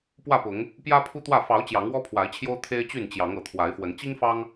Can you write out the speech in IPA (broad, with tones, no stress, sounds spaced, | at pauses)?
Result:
p w ä˥˨ p ʊ˨˦ ŋ | p j ä˦ pʰ u˦ t̪ w ä˥˨ f ɑ˨˦ ʊ̯ t͡ɕ j ɑ˨˦ ŋ w ɔ˦ pʰ w a˨˦ ɪ̯ t͡ɕʰ j o˦ ʊ̯ t̪ʰ e˦ ɪ̯ t͡ɕ y˥˨ n t͡ɕ j ɑ˨˦ ŋ ɤ˨˩ t̪ʰ w a˨˦ ɪ̯ f w ə˨˦ n t͡ɕ i˦ ŋ f ɑ˦ ŋ